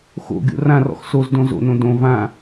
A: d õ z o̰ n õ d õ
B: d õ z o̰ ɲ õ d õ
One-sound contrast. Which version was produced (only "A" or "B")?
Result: A